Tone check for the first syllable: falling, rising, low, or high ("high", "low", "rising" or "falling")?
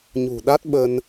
low